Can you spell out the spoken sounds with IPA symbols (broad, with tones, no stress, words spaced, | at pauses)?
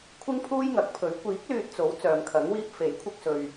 kʷʰɪ˥ŋpʰuː˥jŋɐ˨˥k̚pʰɵ˨˥ɥ kʷiː˨˥k̚ lyː˧t̚t͡so˨˥w t͡sœː˨mkʰɐ˨˥ŋwiː˥p̚ fe˨˥jkʷʰɪ˧k̚sɵ˨ɥ